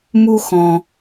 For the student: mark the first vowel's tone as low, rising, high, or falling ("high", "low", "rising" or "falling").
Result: high